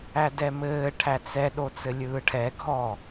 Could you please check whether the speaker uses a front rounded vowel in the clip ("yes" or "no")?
no